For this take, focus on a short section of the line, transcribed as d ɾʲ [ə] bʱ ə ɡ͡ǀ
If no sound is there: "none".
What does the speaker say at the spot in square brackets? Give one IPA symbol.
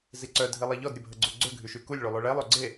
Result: ə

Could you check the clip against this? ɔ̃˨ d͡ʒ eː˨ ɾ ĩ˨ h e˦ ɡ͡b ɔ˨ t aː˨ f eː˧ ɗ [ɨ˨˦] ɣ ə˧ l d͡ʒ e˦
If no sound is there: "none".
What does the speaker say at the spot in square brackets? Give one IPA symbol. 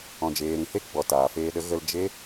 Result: ə˨˦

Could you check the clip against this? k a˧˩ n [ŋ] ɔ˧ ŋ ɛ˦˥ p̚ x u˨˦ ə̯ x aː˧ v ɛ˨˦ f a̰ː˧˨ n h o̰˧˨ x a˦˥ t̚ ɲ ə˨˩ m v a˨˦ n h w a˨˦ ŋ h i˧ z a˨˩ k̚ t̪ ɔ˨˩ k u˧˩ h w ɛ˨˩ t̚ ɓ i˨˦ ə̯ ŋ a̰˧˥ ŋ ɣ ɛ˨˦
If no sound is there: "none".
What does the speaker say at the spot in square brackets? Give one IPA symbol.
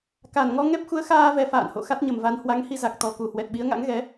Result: ŋ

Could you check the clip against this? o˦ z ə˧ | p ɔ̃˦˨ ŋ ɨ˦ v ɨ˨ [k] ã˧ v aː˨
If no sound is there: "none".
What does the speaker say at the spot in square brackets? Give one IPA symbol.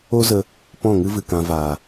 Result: k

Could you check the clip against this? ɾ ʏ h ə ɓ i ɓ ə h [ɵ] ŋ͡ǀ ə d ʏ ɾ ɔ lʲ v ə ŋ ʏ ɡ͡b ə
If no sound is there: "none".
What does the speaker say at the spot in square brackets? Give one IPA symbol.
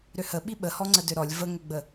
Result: ɔ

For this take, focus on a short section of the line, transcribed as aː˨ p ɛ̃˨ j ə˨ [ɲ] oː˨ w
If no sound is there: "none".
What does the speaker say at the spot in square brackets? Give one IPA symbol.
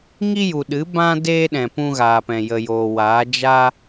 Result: j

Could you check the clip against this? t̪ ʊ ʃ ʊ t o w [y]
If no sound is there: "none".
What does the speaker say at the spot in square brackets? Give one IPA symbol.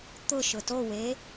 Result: e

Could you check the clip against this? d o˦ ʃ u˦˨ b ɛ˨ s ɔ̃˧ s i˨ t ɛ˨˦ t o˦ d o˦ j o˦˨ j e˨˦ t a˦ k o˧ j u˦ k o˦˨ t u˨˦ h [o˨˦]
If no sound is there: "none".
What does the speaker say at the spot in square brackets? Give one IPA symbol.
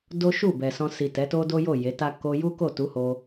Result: o˧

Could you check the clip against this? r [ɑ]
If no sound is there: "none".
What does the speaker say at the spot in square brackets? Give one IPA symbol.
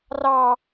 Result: ɑ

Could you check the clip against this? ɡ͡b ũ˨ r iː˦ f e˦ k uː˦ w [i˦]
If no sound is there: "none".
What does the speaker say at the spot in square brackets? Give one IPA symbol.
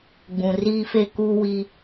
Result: i˦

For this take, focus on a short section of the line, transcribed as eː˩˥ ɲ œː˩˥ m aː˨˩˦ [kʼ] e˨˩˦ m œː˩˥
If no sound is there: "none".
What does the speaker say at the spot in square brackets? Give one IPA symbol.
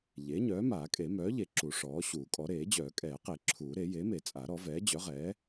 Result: kʼ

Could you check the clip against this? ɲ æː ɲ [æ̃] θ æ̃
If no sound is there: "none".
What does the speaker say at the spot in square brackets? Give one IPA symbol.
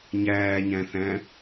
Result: æ̃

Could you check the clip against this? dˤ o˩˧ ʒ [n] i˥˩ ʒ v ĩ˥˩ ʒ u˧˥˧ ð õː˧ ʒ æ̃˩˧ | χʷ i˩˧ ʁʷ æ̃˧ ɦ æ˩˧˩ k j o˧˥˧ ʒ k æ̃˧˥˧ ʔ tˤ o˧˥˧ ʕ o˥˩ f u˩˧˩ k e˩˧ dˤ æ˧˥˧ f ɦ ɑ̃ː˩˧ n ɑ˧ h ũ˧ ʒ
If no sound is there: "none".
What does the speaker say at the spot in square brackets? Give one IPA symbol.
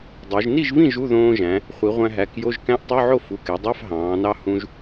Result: n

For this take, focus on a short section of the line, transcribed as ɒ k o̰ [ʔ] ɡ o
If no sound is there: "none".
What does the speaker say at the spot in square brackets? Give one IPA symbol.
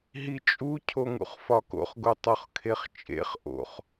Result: χ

